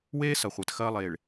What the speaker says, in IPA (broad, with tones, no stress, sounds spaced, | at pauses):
w eː˦ s ɐ˨ χʷ ɛ˨ t x ɐː˦ lˠ eː˨ ɭ